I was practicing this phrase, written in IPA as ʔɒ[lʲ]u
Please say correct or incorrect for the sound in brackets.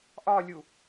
correct